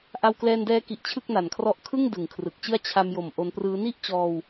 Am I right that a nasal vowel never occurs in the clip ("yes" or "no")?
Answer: yes